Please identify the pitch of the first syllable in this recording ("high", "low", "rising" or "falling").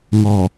low